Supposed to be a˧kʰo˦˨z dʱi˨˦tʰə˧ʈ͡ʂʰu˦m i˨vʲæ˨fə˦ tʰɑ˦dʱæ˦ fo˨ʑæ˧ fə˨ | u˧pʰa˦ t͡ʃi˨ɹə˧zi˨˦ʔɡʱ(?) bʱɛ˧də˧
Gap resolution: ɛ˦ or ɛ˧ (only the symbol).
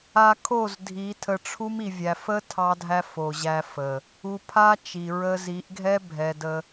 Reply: ɛ˦